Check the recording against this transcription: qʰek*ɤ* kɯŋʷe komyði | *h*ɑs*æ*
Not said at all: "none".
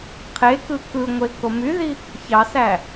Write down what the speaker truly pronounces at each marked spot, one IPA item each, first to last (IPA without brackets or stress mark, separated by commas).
ɯ, ç, æ